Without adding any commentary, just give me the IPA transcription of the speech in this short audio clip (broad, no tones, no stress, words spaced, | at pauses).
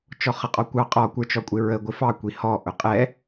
t͡ʃɔχʌqʼɔkʷɑ qʼɔ kʷə˞t͡ʃɔkʷʼɪɹə ɡʷɪfɑ kʷihɔ ʔʊqʼɛ